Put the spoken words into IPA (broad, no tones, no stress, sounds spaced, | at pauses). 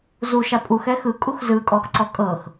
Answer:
z u ʃ a pʼ u x ɛ x ɯ kʼ u x z ɯ kʼ ɔ x ǀ ɔ kʼ ɤ x